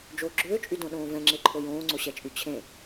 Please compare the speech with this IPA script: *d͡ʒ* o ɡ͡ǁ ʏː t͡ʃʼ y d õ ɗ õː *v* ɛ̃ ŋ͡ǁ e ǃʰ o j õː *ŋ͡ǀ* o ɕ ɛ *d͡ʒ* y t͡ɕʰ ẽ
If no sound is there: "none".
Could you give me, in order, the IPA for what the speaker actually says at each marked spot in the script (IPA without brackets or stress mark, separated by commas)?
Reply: d͡ʒ, v, ŋ͡ǀ, t͡ʃʼ